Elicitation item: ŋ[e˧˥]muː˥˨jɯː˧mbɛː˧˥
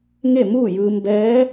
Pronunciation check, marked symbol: incorrect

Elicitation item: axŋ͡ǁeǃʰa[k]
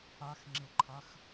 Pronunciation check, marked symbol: incorrect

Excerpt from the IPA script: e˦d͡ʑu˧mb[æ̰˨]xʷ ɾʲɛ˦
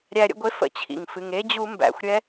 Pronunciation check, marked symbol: correct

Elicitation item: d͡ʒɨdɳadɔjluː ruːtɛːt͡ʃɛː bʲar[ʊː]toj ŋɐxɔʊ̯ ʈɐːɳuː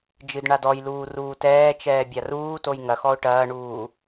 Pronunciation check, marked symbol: incorrect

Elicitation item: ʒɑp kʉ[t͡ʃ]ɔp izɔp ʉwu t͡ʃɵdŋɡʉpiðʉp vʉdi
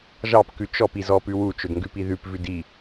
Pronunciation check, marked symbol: correct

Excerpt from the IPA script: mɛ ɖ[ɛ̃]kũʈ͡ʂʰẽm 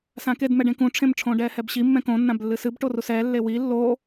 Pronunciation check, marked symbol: incorrect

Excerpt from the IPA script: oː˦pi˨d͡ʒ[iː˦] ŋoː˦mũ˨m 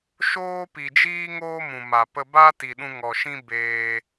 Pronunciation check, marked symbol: correct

